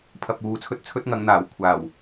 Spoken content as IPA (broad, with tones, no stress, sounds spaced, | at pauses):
pʰ ɐ˨ p̚ uː˨ t͡sʰ ɵ˥ t̚ t͡sʰ ɵ˥ t̚ ŋ ɐ˨˧ ŋ n̪ aː˨˩ w kʷʰ aː˨˩ w